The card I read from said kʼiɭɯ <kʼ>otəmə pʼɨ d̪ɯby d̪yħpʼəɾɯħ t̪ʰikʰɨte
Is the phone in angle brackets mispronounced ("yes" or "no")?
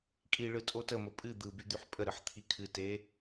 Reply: yes